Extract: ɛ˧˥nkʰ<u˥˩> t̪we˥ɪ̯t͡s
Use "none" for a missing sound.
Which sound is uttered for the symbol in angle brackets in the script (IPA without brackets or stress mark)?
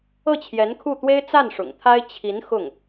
u˥˩